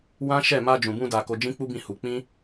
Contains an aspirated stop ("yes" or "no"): no